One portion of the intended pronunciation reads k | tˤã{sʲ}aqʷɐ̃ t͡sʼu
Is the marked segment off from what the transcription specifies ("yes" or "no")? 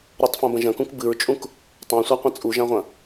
yes